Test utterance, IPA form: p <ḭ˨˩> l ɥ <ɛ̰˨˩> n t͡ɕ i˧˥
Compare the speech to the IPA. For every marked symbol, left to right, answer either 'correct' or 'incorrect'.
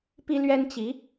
incorrect: i˥, incorrect: ɛ˥

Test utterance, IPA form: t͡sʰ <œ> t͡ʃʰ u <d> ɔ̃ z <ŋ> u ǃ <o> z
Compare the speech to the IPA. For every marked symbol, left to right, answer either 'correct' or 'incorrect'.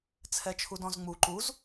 incorrect: ɛ, correct, incorrect: ŋ͡m, incorrect: u

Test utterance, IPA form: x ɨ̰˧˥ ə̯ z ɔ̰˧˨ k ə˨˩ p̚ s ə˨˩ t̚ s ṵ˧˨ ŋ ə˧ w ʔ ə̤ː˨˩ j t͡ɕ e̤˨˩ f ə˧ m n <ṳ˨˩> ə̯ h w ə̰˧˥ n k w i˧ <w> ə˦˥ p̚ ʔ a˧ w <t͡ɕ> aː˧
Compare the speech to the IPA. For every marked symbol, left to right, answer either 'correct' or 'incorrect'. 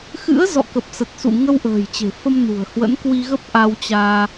correct, incorrect: ɣ, correct

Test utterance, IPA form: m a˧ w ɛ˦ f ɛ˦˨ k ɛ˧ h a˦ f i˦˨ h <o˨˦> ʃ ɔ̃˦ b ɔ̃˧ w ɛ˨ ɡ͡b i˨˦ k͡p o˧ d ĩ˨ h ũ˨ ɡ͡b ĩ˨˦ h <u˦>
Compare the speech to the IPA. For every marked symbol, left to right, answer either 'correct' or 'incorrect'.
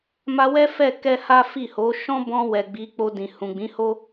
correct, incorrect: o˦

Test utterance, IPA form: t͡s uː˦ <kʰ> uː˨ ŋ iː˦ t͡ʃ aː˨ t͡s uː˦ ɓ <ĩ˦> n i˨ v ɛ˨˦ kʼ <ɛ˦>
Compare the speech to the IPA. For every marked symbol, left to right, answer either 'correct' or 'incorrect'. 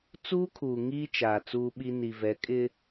correct, incorrect: i˦, incorrect: ɪ˦

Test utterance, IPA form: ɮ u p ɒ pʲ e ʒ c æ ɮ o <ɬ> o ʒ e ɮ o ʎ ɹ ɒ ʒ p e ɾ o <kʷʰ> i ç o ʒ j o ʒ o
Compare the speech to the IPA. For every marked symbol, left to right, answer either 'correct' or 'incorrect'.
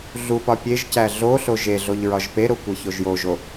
correct, incorrect: kʷ

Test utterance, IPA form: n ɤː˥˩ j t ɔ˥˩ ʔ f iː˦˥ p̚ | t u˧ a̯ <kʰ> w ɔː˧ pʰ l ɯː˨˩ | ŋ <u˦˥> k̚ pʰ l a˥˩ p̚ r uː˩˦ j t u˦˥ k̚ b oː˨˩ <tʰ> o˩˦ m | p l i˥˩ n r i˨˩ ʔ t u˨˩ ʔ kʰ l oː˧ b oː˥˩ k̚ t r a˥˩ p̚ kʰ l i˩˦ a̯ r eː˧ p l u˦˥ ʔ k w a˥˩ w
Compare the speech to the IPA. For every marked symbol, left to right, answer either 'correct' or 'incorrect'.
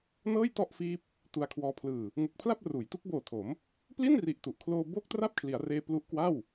correct, incorrect: u˨˩, correct

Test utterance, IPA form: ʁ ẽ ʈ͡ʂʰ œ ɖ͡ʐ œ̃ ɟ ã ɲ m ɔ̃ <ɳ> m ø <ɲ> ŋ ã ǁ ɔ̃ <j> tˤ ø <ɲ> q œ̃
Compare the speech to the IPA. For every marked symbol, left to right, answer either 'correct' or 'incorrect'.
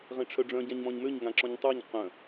incorrect: ɲ, correct, incorrect: ɲ, correct

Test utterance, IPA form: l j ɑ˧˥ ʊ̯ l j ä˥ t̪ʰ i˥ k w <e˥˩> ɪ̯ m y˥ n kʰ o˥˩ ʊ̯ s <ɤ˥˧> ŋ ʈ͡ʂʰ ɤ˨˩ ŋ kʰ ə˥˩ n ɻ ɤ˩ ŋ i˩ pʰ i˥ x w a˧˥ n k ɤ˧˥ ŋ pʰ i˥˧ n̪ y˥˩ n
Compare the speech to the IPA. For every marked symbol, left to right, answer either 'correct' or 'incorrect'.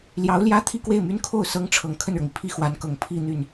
correct, incorrect: ɤ˥

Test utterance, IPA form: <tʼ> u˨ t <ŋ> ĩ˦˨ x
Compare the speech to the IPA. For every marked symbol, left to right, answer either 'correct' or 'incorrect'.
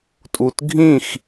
correct, incorrect: ɡʱ

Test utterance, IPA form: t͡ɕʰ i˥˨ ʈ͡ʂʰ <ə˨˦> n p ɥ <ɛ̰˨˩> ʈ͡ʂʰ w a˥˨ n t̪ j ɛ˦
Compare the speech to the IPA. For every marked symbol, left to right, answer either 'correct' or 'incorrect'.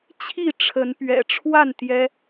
correct, correct

